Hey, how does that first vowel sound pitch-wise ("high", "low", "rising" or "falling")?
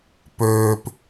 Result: low